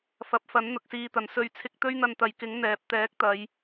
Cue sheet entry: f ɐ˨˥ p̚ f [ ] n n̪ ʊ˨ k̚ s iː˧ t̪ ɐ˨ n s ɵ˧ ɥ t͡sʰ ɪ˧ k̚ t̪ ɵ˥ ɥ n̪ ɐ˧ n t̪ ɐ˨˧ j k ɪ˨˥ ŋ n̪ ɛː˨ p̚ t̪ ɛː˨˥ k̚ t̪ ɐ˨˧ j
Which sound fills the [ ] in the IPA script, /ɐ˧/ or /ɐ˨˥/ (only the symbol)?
ɐ˨˥